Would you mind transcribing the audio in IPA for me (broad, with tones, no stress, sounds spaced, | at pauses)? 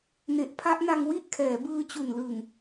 n e˨˩ ʔ pʰ a˦˥ ʔ n a˧ ŋ w i˥˩ ʔ kʰ ɛː˩˦ b ɯː˧ t͡ɕ u˨˩ n l ɯ˨˩ ŋ